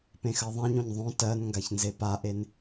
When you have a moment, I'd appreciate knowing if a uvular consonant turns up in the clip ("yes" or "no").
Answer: no